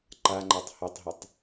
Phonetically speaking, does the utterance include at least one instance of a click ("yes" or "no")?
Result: yes